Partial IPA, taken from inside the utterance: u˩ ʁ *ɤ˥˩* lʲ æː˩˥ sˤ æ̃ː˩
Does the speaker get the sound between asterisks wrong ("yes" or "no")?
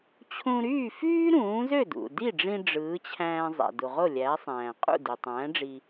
yes